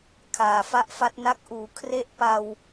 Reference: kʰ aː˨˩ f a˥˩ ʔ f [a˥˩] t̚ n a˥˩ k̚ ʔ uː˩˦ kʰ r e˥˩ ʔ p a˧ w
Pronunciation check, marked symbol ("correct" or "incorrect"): incorrect